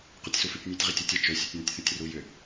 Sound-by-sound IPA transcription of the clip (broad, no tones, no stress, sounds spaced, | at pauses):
q ʉ tʲ s u f ʉ tʲ nʲ ʉ tʲ ʁ i tʲ u tʲ ə t͡ʃ ɵ sʲ u tʲ n ʏ tʲ θ ʉ tʲ r u j ʏ